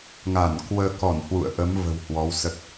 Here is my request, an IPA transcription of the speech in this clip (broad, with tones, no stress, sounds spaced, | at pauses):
ŋ a˧˩ n k w əː˧ k ɔ˧˩ n h w ṵ˧˨ ə̯ ʔ ə˨˦ m v ə̤˨˩ w h w ɔ˨˦ w s ə˦˥ t̚